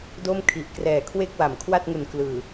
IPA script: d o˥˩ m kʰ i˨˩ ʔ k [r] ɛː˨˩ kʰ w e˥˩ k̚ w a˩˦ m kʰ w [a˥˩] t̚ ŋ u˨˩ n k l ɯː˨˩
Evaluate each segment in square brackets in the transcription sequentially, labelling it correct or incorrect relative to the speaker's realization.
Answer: correct, correct

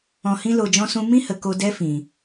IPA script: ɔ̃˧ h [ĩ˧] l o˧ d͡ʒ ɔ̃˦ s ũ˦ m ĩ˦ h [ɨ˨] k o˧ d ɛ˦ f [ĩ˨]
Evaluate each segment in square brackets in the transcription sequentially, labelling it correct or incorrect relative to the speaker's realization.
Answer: incorrect: ĩ˦, incorrect: ə˨, correct

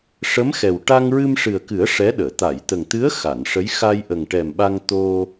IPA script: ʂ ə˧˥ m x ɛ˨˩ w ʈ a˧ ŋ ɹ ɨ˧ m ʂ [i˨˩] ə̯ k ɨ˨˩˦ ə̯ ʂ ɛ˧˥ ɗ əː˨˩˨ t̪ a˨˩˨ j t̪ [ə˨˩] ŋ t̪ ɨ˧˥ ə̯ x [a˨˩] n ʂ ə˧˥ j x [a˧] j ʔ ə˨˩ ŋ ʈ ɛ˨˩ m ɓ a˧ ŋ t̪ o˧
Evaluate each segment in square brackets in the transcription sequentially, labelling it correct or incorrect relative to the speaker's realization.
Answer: incorrect: ɨ˨˩, correct, incorrect: a˨˩˨, correct

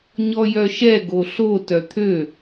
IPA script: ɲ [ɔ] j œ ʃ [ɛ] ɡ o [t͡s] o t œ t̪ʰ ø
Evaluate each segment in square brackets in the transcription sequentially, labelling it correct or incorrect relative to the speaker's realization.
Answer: correct, correct, incorrect: ɬ

